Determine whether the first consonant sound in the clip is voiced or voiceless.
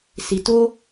voiceless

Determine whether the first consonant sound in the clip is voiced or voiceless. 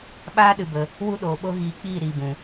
voiced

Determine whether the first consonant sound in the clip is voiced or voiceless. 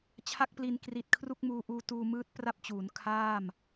voiceless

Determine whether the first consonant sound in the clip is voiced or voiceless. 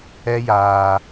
voiced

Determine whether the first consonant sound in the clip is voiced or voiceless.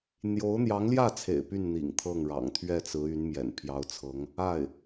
voiced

